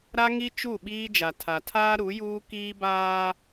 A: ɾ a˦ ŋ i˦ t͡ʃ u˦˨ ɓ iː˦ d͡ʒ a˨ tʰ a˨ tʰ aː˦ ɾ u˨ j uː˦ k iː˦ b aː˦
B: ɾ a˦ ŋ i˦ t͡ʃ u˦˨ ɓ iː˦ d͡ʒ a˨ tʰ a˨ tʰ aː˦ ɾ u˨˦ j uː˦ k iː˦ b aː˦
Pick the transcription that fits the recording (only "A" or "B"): B